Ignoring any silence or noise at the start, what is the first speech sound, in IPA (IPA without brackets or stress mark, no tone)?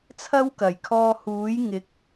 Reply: t͡sʰ